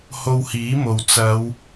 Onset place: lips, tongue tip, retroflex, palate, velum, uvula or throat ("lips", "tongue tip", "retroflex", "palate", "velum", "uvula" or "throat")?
throat